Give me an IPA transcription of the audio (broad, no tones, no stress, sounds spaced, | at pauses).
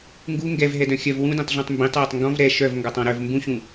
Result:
ŋ ɡ u ŋ ɡ ɛ v ɦ ɛ d œ̃ xʲ œ v w ũ d ẽ tˤ ɮ ũ tˤ m b ĩ tˤ w e tˤ ŋ ɡ ɔ̃ v ɾ ɛ ʃ œ v ŋ ɡ ɔ tˤ ɔ̃ ɾ œ v m b ũ ɕ ũ